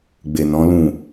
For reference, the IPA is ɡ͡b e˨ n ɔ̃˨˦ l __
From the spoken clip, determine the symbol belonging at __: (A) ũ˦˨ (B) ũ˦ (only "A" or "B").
A